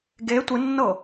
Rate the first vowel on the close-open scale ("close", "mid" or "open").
mid